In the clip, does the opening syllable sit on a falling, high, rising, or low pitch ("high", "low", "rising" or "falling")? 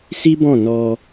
high